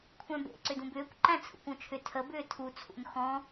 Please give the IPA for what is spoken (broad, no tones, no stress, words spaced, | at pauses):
kʷʰæ̃bḛ ǀʏdũbʏːkʷ ǃæ̃t͡sʰṵkʷõt͡ʃʰʏ tʰəbʏː tʰut͡sʰṵn xɔ̃